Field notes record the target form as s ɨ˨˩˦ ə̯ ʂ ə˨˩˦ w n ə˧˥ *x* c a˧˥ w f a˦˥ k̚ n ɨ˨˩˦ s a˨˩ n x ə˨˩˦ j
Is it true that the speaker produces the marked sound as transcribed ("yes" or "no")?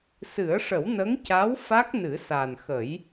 no